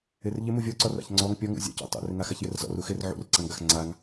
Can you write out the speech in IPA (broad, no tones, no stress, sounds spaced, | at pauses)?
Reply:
ɪ r ʎ ɪ m u vʲ ɔ ǀ ɔ r a̰ ç ŋ͡ǀ ɔ ŋ pʲ ɔ ŋ ṵ zʲ a̰ c a̰ tˤ ṵ r ɪ ŋ a x a ç j ɪ r z ɔ̰ r u x ɪ r ʕ ṵ r ǀ a ŋ ɡ a x ŋ͡ǀ a ŋ